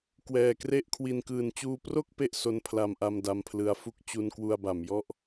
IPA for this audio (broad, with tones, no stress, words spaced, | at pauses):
kwɛː˨˩kre˥˩ʔkʰwi˧n kɯː˨˩nt͡ɕuː˧pro˥˩k̚ pe˦˥ʔso˧n pʰla˧mʔa˧m da˧mpʰlɯ˦˥a̯fu˥˩k̚ t͡ɕu˧nkwu˧a̯ba˩˦m jɔ˥˩ʔ